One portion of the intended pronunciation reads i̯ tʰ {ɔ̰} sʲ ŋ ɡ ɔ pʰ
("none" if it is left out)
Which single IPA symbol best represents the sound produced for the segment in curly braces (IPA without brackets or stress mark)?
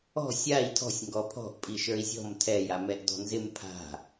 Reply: ɔ̤